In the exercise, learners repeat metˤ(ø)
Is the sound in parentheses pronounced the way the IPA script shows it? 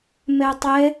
no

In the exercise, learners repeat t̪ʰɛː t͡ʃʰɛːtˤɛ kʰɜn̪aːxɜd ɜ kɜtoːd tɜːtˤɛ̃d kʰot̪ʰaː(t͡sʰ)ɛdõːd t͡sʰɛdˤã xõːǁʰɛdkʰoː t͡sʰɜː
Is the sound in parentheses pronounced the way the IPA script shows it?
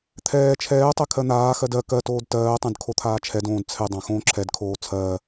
no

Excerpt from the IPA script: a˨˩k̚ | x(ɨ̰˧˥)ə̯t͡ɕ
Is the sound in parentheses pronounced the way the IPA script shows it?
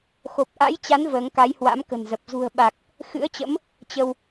yes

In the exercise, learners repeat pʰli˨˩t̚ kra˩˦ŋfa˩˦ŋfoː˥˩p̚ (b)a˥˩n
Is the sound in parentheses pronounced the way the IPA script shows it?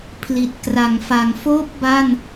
yes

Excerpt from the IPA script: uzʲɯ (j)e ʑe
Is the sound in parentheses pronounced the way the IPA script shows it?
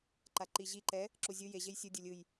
yes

